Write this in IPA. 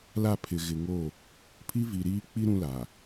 l a˦˨ pʰ ɪ˨ ɣ ɪ˨ ŋ o˦˨ | pʰ i˦ v i˨ ɾ iː˦ k͡p i˦ ɾ ũ˦ l a˨

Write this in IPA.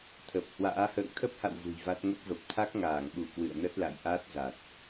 t̪ʰ ə˨˩ p̚ h w a̰ː˧˥ h ə̰ː˧˨ ŋ t̪ʰ ə˦˥ p̚ h a̰˧˨ w v ṳ˨˩ j v a˦˥ t̚ ŋ ə˦˥ p̚ v ə˨˩ p̚ t̪ʰ a˦˥ k̚ ŋ aː˧˩ ŋ ɓ u˧˩ k w ɨ̰˧˨ ə̯ n ə˦˥ t̚ l a̰˧˨ j ʔ a˦˥ t̚ z a˨˩ t̚

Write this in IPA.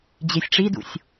d͡ʑ e sʲ ʈ͡ʂ i d ṵ sʲ

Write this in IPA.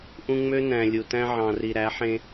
ʔ ũ˦ ŋ͡m ø˦ n æ̃˨ lʲ u˨ t æ̃˦ ʕ ɑ̃˨ r i˨ ɾ æ˨˦ ħ ẽ˦

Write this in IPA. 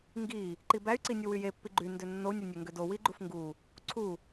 ŋ ɡ i | ǃ i b æ y̯ ǀ i nʲ u w y j e pː i ɡ͡ǃ y n d ø nː o u̯ nʲ o nʲ ø ŋ ɡ ø d o w i ɡ͡ǃ u f ŋ ɡ u | ǀʰ u

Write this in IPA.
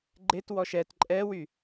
ɡ͡ǃ e t w ɔ ʃ ɛ t ǃʼ ɛ w y

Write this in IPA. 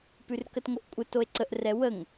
p ʉ r k ə t ŋ o ʔ kʷʼ ə t o e̯ ǀ ə ʔ r ɛ w ə ŋ

